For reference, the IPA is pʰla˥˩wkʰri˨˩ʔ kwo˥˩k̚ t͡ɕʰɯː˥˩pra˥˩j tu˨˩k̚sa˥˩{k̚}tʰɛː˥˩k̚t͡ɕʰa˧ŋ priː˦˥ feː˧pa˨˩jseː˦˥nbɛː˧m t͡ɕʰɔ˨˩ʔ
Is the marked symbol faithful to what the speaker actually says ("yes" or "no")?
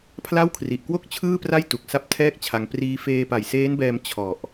no